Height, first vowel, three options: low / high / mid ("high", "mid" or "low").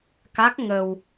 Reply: low